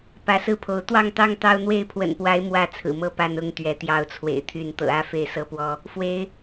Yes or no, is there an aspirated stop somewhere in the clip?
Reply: yes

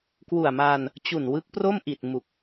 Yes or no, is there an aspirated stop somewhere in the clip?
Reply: no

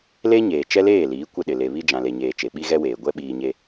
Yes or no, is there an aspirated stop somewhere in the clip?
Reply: no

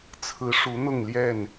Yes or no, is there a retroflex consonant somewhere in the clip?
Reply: yes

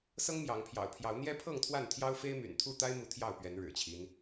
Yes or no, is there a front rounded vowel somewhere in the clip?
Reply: yes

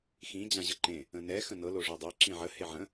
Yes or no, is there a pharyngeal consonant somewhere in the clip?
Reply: yes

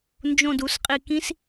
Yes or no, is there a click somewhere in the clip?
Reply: no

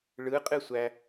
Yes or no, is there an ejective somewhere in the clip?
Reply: yes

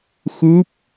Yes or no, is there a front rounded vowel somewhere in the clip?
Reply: no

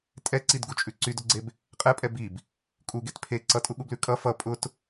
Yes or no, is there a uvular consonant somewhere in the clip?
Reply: yes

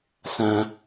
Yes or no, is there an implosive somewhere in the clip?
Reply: no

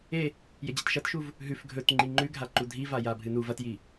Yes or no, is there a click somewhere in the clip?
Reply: yes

